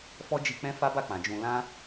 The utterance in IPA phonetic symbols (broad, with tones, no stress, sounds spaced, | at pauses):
f ɔ˦ d͡ʒ i˧ k͡p ɛ̃˦ f a˦ b a˦˨ k͡p ã˨ d͡ʒ ũ˧ l ã˦